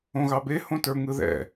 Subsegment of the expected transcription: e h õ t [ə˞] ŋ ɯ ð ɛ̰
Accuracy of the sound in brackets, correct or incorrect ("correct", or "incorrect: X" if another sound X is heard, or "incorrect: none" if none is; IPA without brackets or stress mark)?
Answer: correct